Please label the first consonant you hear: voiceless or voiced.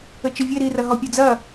voiceless